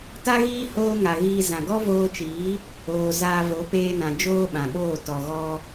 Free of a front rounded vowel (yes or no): yes